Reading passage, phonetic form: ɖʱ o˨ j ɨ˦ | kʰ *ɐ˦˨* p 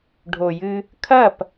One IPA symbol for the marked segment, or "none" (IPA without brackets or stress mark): ɐ˦˨